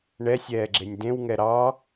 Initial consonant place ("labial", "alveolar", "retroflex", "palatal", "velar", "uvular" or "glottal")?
retroflex